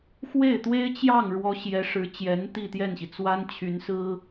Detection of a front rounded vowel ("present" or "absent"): present